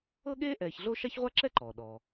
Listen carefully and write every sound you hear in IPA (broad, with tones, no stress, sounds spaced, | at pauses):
ɤ˥ ɠ eː˥ ʔ ɛː˧ ç ɮ o˥ ʃ a˥ ç ʁʷ a˥ ǁ ɛ˥ ǃ ɔː˩ ɗ ɔ˩